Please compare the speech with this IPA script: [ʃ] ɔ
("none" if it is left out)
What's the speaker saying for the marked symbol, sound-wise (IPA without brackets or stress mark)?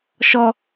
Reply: ʃ